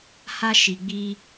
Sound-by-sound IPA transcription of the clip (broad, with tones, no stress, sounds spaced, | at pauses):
h a˦ ʃ i˨ ɡ͡b i˦